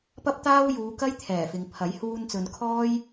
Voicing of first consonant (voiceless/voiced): voiceless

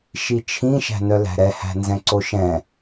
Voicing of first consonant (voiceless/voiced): voiceless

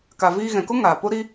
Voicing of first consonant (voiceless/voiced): voiceless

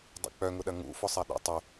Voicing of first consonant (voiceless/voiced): voiced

